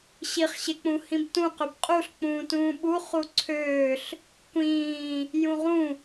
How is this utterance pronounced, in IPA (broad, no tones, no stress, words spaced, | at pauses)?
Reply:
ɕiχɕek͡pũ hĩbtũqøb qʼuɬk͡pũːtũː ɓu χuǀʰøːɬ | kʷĩː | jũʁũ